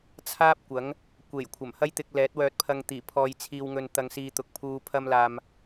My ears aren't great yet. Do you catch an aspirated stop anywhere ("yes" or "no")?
yes